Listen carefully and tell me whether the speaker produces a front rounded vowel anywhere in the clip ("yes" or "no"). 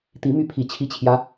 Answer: yes